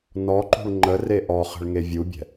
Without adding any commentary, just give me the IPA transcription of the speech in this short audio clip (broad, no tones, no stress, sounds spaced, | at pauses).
n ɔ ǃ ṳ ɭ ŋ͡ǃ ə r e ʔ ɔ χ ə̤ ɭ ŋ e vʲ u bʲ ɛ̤